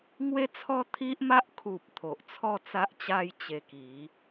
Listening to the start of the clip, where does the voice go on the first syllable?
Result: falling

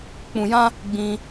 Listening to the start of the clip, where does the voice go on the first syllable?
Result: low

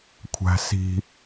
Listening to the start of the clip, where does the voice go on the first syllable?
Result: high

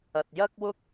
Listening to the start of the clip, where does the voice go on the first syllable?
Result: low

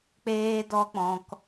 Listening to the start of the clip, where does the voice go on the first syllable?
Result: high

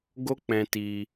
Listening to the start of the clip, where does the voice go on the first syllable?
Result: high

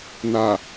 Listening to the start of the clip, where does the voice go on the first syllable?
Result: low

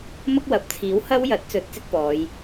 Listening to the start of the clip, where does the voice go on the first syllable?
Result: high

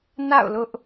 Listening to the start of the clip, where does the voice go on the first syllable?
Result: falling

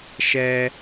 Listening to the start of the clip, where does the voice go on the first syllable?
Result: high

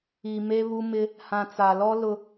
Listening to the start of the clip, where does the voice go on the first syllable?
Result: low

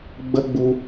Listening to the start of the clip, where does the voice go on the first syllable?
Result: high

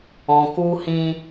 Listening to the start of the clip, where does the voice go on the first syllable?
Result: low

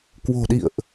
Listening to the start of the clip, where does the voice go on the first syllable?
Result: low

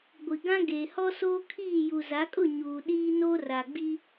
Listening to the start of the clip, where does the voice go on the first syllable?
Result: low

